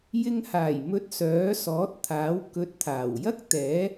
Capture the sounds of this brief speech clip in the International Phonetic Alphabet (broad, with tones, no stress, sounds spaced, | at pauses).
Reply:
j ɪ˧ ŋ h aː˨˩ j m ɵ˨˥ t̚ s œː˨˥ s ɔː˨˥ t̚ t̪ʰ aː˨˥ w k ɵ˨ t̚ t̪ʰ aː˨˩ w j ɐ˥ k̚ t̪ ɛː˨˥